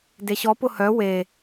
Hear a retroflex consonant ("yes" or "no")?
no